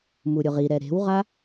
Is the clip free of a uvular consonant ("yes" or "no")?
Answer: no